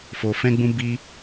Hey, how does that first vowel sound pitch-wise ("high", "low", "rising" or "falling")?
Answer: low